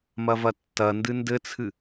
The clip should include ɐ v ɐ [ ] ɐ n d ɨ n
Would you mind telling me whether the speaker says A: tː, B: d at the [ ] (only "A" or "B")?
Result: A